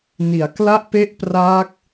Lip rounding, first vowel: unrounded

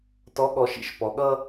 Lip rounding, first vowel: rounded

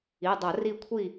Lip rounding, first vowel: unrounded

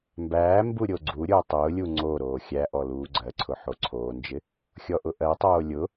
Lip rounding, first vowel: unrounded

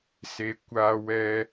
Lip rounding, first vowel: unrounded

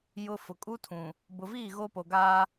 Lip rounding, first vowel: rounded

